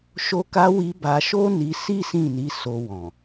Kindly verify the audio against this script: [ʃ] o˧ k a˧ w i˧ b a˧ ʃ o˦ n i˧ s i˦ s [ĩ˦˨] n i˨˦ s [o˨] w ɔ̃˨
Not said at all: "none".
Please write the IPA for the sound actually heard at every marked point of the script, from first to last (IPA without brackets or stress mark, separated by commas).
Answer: ʃ, ĩ˦˨, o˧